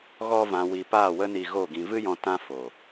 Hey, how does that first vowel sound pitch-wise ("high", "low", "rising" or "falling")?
high